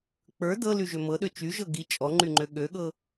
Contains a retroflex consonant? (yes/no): no